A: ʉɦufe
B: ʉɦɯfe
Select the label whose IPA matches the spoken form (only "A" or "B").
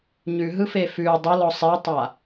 B